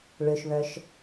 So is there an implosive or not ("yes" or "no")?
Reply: no